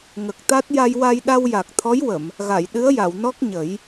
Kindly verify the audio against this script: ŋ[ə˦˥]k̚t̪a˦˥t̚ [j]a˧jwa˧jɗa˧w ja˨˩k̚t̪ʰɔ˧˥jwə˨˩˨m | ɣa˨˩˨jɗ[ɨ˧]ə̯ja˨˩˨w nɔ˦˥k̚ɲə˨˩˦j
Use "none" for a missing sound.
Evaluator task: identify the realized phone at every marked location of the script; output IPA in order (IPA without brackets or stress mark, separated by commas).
ə˨˩, j, ɨ˧˥